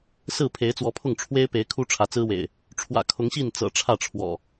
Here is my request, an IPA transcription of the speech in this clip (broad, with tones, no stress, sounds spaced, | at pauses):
s ɹ̩˥˨ pʰ e˨˦ ɪ̯ t͡s w ɔ˨˦ pʰ ʊ˥˨ ŋ ʈ͡ʂʰ w e˦ ɪ̯ p e˨˦ ɪ̯ kʰ u˦ ʈ͡ʂʰ ä˨˦ t͡s ɹ̩˦ w ḛ˨˩ ɪ̯ | ʈ͡ʂʰ w ä̰˨˩ kʰ ʊ˨˦ ŋ ɕ i˥˨ n t͡s ɤ̰˨˩ ʈ͡ʂʰ ä˥˨ ʈ͡ʂʰ w ɔ̰˨˩